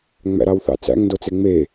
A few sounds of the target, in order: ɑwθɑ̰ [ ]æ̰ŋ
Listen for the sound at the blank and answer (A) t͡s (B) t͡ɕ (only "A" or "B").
A